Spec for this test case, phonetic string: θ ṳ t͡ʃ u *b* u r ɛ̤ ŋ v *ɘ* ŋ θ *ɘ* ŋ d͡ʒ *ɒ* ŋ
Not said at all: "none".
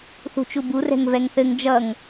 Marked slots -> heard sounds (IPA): b, ɛ, ɘ, ʌ

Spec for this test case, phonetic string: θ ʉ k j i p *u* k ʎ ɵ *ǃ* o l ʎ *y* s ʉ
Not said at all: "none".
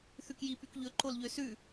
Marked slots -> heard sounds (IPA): y, ǃ, ø

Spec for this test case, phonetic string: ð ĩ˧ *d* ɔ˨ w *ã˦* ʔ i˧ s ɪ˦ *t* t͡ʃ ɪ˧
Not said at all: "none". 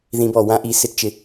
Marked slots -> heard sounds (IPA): b, ã˦, t

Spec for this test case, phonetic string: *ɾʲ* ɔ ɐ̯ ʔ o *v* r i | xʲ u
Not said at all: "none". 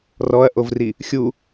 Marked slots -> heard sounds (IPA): r, v

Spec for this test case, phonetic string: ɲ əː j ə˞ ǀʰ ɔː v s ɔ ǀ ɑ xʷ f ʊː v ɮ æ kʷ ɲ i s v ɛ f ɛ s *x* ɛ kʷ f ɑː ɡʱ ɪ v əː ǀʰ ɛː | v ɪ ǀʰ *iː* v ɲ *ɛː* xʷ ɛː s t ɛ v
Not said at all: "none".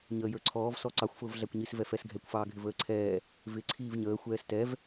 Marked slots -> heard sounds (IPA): ɡʱ, iː, əː

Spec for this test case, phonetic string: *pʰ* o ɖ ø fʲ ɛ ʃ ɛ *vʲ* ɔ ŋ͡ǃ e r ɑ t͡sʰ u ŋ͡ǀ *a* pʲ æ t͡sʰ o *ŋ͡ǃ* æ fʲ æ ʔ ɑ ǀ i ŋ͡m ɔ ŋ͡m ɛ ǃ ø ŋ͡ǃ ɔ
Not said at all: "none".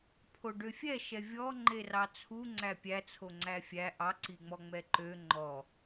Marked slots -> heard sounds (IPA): pʰ, vʲ, æ, ŋ͡ǀ

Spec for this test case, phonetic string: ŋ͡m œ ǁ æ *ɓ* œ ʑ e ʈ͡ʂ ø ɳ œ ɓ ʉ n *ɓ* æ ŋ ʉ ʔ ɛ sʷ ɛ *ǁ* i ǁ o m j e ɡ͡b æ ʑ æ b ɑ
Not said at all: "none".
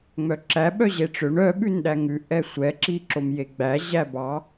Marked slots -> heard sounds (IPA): ɓ, ɗ, ǁ

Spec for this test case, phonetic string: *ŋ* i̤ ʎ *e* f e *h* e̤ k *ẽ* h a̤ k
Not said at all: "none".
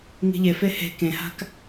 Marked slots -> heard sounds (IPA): ŋ, e, h, ẽ

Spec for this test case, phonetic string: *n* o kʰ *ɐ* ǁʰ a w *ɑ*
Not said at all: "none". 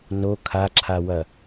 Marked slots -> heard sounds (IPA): n, a, ɐ

